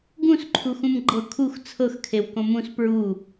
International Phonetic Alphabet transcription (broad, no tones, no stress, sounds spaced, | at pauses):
ɡ ũ s ǃʰ u x ũ m ɡ͡ǃ ɤ kʰ u x t͡sʰ ɤ x kʰ e w k õ m ũ s p ɹ u